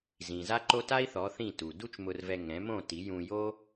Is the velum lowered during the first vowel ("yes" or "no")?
yes